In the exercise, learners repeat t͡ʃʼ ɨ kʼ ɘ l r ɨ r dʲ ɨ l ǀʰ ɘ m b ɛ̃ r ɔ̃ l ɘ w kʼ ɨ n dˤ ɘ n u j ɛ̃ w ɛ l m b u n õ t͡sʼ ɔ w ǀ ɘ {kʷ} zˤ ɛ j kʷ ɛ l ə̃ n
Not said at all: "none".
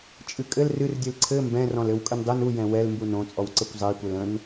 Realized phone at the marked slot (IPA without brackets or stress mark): kʷ